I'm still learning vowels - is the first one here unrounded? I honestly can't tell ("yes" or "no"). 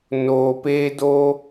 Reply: no